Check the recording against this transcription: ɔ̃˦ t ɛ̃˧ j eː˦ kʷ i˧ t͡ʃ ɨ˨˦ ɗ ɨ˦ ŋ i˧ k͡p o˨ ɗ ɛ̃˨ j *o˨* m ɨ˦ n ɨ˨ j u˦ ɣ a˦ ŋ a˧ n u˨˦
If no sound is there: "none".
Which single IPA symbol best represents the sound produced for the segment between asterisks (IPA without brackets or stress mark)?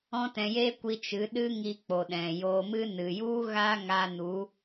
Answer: o˧